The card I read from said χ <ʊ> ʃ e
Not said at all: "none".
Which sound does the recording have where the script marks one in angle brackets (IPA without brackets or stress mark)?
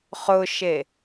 ʊ